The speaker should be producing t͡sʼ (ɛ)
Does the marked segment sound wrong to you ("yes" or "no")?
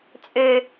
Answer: yes